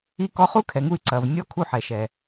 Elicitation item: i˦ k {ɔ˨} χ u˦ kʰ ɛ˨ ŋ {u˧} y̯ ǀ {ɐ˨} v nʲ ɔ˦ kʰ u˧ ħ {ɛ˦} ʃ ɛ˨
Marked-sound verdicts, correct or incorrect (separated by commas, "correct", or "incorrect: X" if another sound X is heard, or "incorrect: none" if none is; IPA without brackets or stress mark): incorrect: ɔ˧, correct, correct, incorrect: ɛ˨